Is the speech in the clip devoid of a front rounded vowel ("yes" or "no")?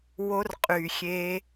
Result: no